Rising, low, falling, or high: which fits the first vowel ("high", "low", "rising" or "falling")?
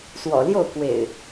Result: low